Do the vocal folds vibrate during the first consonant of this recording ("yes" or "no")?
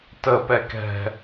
no